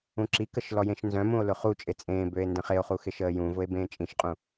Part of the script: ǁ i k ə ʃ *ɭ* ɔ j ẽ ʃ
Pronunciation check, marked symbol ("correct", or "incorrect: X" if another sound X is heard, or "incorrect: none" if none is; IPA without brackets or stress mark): incorrect: l